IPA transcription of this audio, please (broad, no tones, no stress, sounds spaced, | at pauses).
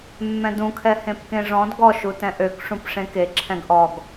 mː ɛ̃ d ũ kʰ ɛ h ẽ p k ẽ ʐ ɔ̃ d ɡ ɔ ʃ u t ɛ̃ ʔ ø k ʂ ũ p ʂ ẽ k e ǁʰ ɛ̃ ɡ ʔ ɔ ɡ